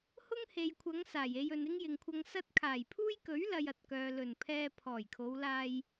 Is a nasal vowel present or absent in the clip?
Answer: absent